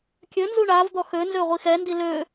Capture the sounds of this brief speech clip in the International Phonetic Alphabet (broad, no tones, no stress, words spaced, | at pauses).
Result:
kʲønzu ɳavd̪ɔ xønzø ʁʷixɛndi lø